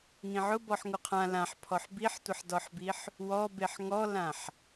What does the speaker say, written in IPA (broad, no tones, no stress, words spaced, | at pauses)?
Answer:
ŋĩʕʊ bɔħŋuqʰã lãħpʰɔħ biħtʷəħdɔħbiħ | wɔbeħ ŋɔlãħ